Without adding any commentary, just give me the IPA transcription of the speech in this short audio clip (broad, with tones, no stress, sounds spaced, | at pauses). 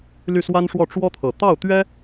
l y˥˩ s w a˥ n ʂ w ɔ˥˩ ʈ͡ʂ w ɔ˥ t̪ʰ ɤ˨˩ t̪ ɑ˥˩ ʊ̯ t̪ ɥ ɛ˥